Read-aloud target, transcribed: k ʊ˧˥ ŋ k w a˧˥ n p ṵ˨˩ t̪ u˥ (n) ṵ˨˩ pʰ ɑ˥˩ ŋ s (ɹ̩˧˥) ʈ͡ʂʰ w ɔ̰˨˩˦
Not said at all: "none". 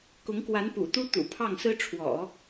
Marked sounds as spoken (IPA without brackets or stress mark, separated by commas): t̪, ɹ̩˥